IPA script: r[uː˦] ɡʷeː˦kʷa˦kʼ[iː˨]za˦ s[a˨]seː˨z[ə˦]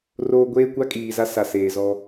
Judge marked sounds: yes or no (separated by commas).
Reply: no, yes, yes, no